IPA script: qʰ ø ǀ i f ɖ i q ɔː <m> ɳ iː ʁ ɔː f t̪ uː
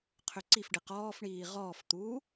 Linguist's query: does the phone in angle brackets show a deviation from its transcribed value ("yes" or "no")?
yes